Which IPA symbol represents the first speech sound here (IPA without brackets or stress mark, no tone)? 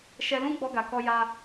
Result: ʃ